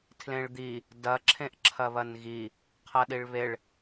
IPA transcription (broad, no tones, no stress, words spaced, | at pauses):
tʰlẽɭd̪i | dɐ ǁʰẽʔǁʰɐβɐnɣi | qʰɐɗiɭβeɭ